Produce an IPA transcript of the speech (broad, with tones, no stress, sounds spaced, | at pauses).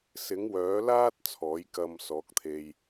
s ɪ˨˥ ŋ w œː˨˥ l aː˥ t̚ t͡sʰ ɔː˨˥ j k ɐ˧ m s ɔː˨˥ k̚ t̪ʰ e˧ j